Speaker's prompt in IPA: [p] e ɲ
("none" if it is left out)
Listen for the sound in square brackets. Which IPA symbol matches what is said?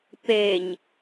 p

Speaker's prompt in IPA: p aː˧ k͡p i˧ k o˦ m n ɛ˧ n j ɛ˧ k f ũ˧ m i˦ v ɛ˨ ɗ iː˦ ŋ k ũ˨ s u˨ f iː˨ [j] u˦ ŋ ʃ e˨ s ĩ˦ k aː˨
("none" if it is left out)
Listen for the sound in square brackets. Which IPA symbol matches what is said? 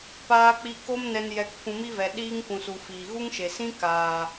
ɣ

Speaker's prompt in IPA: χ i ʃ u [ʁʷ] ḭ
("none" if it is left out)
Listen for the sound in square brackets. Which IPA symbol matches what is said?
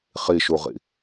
ʁ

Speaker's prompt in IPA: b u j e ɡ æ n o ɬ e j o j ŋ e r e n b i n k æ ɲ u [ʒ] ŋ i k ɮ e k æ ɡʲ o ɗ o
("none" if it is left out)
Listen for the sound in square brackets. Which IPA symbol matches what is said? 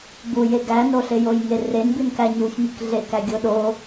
ç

